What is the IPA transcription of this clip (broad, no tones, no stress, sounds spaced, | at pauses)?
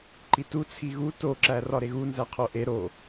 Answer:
ǃ i t u t͡sʰ i ɣ u t o ǁ æ r ɒ ɾ e ɣ u n z æ qʰ o ʔ e ɾ o